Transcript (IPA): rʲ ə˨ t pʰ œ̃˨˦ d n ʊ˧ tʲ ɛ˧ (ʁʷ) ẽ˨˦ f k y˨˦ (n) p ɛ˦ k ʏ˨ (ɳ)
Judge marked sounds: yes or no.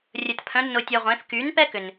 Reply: yes, yes, no

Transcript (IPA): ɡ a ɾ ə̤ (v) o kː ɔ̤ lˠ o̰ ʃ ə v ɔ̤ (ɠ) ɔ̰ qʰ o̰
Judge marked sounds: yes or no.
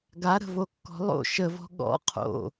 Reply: yes, yes

